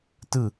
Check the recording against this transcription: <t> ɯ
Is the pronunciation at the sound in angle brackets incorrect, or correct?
correct